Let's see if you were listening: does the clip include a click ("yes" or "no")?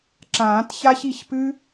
yes